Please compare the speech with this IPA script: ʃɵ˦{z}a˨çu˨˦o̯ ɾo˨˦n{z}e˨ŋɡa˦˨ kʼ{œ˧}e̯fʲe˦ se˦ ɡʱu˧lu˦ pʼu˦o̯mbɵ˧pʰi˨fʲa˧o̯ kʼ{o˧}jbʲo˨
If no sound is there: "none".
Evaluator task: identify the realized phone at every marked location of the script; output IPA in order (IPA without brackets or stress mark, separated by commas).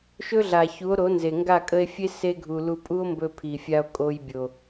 ɮ, z, ə˧, o˧